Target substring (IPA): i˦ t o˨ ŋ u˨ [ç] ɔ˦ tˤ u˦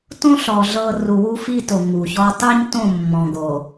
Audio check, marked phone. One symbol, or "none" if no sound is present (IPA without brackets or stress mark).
ç